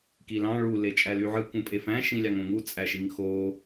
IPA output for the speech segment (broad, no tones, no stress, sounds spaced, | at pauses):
k i l ɑ̃ ɭ u l e t͡ʃʼ æ l y ʕ ɯ k ũ pʼ e f æ̃ ʃ ĩ lʲ ɑ ŋ õ ŋ u t͡sʼ æ ʃ i ŋ x o